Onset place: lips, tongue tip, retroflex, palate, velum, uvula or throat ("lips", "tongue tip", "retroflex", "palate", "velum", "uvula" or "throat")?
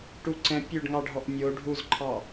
retroflex